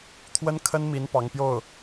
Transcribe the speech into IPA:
t̪ʰwə˥n kʰə˥nmi˧˥n pɑ˧˥ŋpjo˥˩ʊ̯

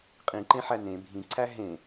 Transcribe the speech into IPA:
qʼĩǃẽħæ nẽ bʱĩǀʰæ ɦẽ

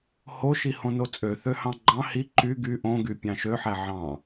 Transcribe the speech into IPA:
hoʃi hõnot͡sʼø θøhɑ̃ɡ͡ǃɑ̃ hi ǃy ɡy ʔõɡy pʲɑ̃ʃøħæ ʕɑ̃

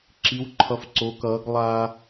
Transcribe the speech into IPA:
ǁi˧˥wǃʰʌ˧˥fǀo˧˥kʌː˧˥ɡ lˠa˥

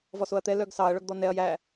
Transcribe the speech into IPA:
vɔsoɐ̯t̪ɛ lœɡsɑɐ̯ ɭœɡd̪ɔnɛɐ̯ jæ

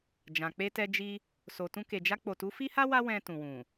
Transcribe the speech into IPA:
d͡ʒã˨k͡pe˧tɛ˧ d͡ʒi˧ | so˨tũ˧ke˨d͡ʒa˧ k͡po˨tu˨˦fi˦ha˦ wa˦ wɛ̃˧tũ˨wũ˨

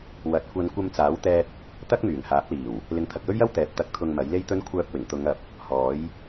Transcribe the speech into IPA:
wɐ˨t̚kʷɐ˧n kʷɐ˧mt͡saː˨˥wt̪ɛː˧t̚ | t̪ɐ˥k̚myː˨˩ŋhaː˨˥p̚liː˨˩w | lɪ˨˥ŋt̪ʰɐ˨k̚jɵ˥ɥjɐ˥w t̪ɛː˨˥p̚ t̪ɐ˨k̚t̪ʰʊ˨ŋ mɐ˨˥jle˥jt̪ɵ˥n kʷʰœː˧p̚wɪ˨˩ŋ t̪ʊ˨˧ŋɐ˨p̚ | hɔː˨˥j

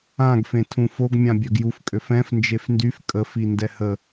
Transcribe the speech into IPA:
ãɡfẽtʰũ foɡmʲã bʲœɡjufkʼøf ɛ̃f nd͡ʒefndyf kʼəfi ndɛhə

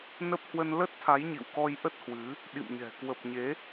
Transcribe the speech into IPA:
nə˦˥p̚ hwə˧nlə˦˥t̚t̪ʰa˨˦j ɲḭ˧˨wkɔ˧j ʔə˦˥t̚hwɨ˨˦ | ɗḭ˧˨mɲɛ̤˨˩ kwə˨˩p̚ɲe˨˦

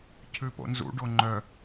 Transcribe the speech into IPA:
cʰʉpo̰nzṵ ɖoŋ͡ǃœ

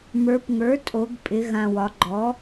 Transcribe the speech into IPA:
mə˞˩˧pŋə˞˩˥ tʼo˩˥ɡ pʼɪ˩˧ ɣã˨˩wɒ˩˧ ɡ͡ǃɔ˩˥

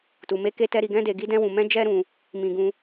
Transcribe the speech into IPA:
tu˧me˦ke˦tɛ˦ ɾi˧ɡɛ̃˦de˧ ɡi˦dɛ̃˦wũ˧mɛ̃˦ d͡ʒɛ˦ɾũ˧ | mĩ˧ɡũ˧

